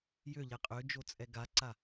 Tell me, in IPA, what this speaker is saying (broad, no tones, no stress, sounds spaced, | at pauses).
j ø ʎ ɛ qʼ ø d͡ʒ o t͡sʼ ɛ ɡ a ǀ a